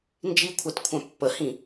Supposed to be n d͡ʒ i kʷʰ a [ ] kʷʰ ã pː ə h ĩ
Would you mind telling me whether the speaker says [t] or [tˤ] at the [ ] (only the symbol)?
t